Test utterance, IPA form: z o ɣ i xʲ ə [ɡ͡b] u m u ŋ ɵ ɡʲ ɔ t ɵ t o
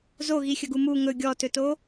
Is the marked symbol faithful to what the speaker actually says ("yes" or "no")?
no